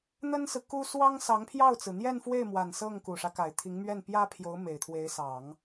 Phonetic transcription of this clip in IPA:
n̪ ə˥ n s ɹ̩˨ k u˥ s w ɑ˥ ŋ s ɑ˧˥ ŋ pʰ j ɑ˥˩ ʊ̯ t͡s ɹ̩˩ n̪ j ɛ˥˧ n f w e˥˩ ɪ̯ m w a˨˩ n s ɤ˥˩ ŋ k u˨˩ ʂ ä˦ k a˨˩ ɪ̯ t̪ʰ i˧˥ ŋ m ɥ ɛ˥˩ n p j ä˥ pʰ j o˧˥ ʊ̯ m e˨˩ ɪ̯ t̪ʰ w e˧˥ ɪ̯ s ɑ˨˩˦ ŋ

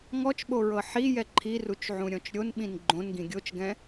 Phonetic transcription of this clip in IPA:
ŋ ɔ t͡ʃ ɓ o ɹ ɤ ħ i j ɛ ǃʰ i r u t͡ʃ ʕ ũ ɾʲ ɔ̃ t͡ʃ ɾʲ o n ɓ ĩ n ɡ͡ǃ õ n ɡ ĩ ɡʲ o t͡ʃ ɡ ɛ̃

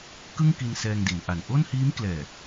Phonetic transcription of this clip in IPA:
k ɯ˥˩ ŋ k i˧ n s ɛː˧ ŋ d i˩˦ n ʔ a˨˩ n ʔ o˥˩ n h iː˦˥ m k l ɛː˨˩

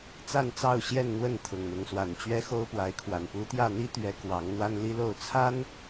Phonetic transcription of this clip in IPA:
t͡s a˥˨ n t͡s ɑ˥˨ ʊ̯ ɕ j ɛ˥˨ n n̪ w ə˥˨ n t̪ʰ ʊ˨˩ ŋ n̪ ʊ˨˦ ŋ s w a˨˩ n t͡ɕ ɥ ɛ˦ x o˦ ʊ̯ p w a˨˦ ɪ̯ kʰ w a˨˩ n p u˨˦ t̪ j ä˥˨ n̪ i˦ t̪ ɥ ɛ˨˦ k w ɑ˨˦ ŋ n̪ w a˦ n l i˦ l o˥˨ ʊ̯ t͡sʰ a˦ n

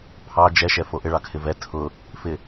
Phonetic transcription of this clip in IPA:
pʰ ɑ d͡ʒ ɛ ʃ ɛ f o ʔ ɪ ɭ ɑ kʰ ɪ v ɛ tʰ ʊ | f ɪ

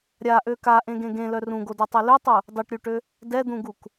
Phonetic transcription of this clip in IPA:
ɾʲ a ʔ ø k a ʔ ẽ ɡ ẽ ɡ ẽ l œ r ũ ɡ o d ø tˤ e l ø tˤ u | dˤ o ʈ ɾʲ u ʈ ø | d ɛ d̪ ũ ɡ u k

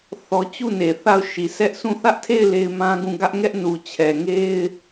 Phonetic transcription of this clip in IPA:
θ ɔ˦ t͡ɕ u˦˨ n e˨ θ a˦˨ ʊ̯ ʃ i˨ sʰ ɛ˦ ʔ sʰ ũ˦˨ θ ä˦ ʔ tʰ e˦˨ ɪ̯ l e˦ ɪ̯ m ã˦ ɡ ũ˦˨ ɡ ä˦ ʔ ŋ ɛ˦ ʔ n u˨ t͡ɕʰ ɛ˨ ŋ e˦ ɪ̯

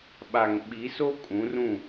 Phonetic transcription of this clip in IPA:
ɓ a˨ ŋ ɓ i˨˦ s o˦ kʼ ũ˨˦ r ũ˦˨

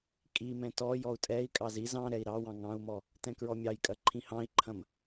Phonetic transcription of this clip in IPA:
kʼ i m ɛ̃ t ɔ j ɔ u̯ tʼ ɛ i̯ kʼ ɑ z i z ɑ̃ ɾ ɛ i̯ ɾ ɑ w ɑ̃ ŋ ɑ̃ u̯ m ɔ | t ɛ̃ k ɹ ɔ mʲ ɑ j kʼ ɐ ǃʰ ĩ h ɑ̃ i̯ ǃʰ ɐ̃ m

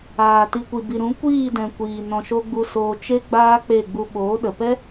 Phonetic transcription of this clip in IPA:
aː˨ t i˨ kʷ i˨ b i˨ ɾ ũ˨˦ kʷ iː˦˨ d ɛ̃˨ kʷ iː˨ n ɔ̃˨ ʃ o˧ ɡ͡b u˧ s oː˧ t͡ʃ e˦ ɡ͡b aː˦ k͡p e˦˨ ɡ͡b u˧ ɓ oː˨˦ ɗ ə˨ p ɛ˦

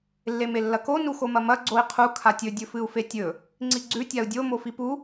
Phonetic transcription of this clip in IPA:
lː e m e lː ɐ k o n u x o m ɐ m ɐ ɡ͡ǀ o i̯ qʰ u kʰ a tʲ ɵ dʲ ɵ f ɨ u̯ f e tʲ ɵ | ŋ͡ǀ i ɡ͡ǀ ʉ tʲ a u̯ dʲ o m o f i p u

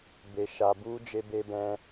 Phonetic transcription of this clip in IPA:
b e˧ ʃ a˧ b u˦ d͡ʒ e˦ b e˦ b ɛ̃˦

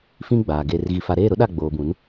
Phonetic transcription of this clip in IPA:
f ĩ˦ ɡ͡b aː˨ ɡ e˨ r ɣ i˨ f a˨ ɾ eː˦˨ ɾ ʊ˦ ɗ a˦˨ ɡ͡b oː˨ b ũ˨˦ n

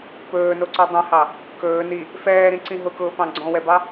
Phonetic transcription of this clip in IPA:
p ɵː n o ǀ ɔ dˤ ẽ h ɑ | k ɵː n i | f ɛː ɾ ĩ ǀ ĩ ɦ ʊ k ʊː p ɑ̃ ɡ͡ǀ ɔ̃ w ɛ b ɑ

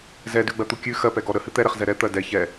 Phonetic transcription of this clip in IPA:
z ɛ d ʉ ɡ͡b ɜ t̪ u kʲ ʉ x ɜ p ɛ ɡ ɔ ɾ ə h ɨ t̪ ɛ ɾ ɛ χ z ɛ ɾ ɛ t̪ ɜ d ɛ ç ɛ

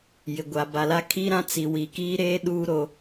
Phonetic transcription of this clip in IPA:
j ɪ˨ ɡʷ a˨ b a˨ l a˦ kʰ i˦ ɾ ã˦ t͡s i˨ w i˨ k iː˦ ɾ eː˦ ɗ uː˦ ɾ o˦

